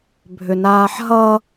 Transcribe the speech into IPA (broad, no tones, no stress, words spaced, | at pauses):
bʱʏnaːħɦʌ